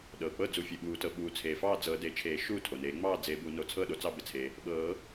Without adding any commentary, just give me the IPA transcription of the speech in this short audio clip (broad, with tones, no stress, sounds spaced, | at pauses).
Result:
ɗ ɤː˩ k͡p ɤ˥˨ d͡z u˨˩˦ fʲ e˩ ɓ uː˨˩˦ t ɤ˩ ɓ uː˨˩˦ t͡sʰ eː˩ f ɑː˥˨ d͡z ɤ˨˩˦ d e˨˩˦ t͡ʃʰ eː˨˩˦ ʃ uː˥˨ tʰ o˩ n eː˨˩˦ ŋ͡m ɑː˥˨ d͡z e˨˩˦ b u˨˩˦ n o˨˩˦ t͡sʰ ɤː˥˨ ɗ o˩ t͡s ɑ˥˨ b e˩ t͡sʰ e˩ | ɓ ɤː˨˩˦